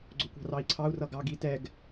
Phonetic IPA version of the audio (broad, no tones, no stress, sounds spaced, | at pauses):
ɡ͡ǀ ʊ kʷ ɑ̤ r ɑ i̯ ǀʰ ɑ u̯ r ʌ ɡ ɑ ɡ i t ɛ ɡ